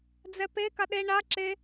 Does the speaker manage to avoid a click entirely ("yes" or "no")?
no